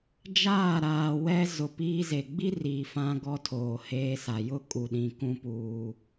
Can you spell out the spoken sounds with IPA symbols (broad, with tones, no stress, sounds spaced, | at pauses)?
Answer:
d͡ʒ aː˦˨ ɾ aː˨ w ɛ˦ z ʊ˨ p iː˦ z e˨ ɡ͡b i˦ r iː˨ f ã˦ ɡ ɔ˦ tʰ oː˨ h eː˦ s a˨ j ʊ˦ kʼ u˨ ɗ ĩ˨ k ũ˦ p uː˦